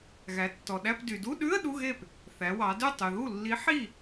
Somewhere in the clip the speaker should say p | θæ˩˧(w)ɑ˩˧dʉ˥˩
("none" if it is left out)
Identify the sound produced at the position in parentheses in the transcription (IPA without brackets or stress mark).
w